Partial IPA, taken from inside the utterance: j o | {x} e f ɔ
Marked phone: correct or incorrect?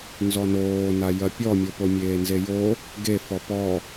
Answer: incorrect